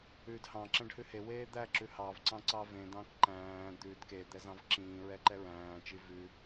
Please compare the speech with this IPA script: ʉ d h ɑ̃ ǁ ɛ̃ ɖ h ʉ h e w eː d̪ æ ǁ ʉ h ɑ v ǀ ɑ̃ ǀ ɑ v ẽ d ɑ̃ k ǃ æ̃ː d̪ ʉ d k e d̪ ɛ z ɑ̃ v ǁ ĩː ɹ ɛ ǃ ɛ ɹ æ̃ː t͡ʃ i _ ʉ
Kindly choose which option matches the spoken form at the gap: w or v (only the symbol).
v